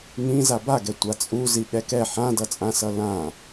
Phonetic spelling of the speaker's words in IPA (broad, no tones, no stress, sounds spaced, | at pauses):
ŋ ĩ z a b a ɡ ɛ tʷ a t͡sʼ u z i ɠ ɛ k ɛ ħ ã d ʌ t͡sʼ ã s ʌ l ã